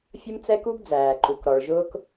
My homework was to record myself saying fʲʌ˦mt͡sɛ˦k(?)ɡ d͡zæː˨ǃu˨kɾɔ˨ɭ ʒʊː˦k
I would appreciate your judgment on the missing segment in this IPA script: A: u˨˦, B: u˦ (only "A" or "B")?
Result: B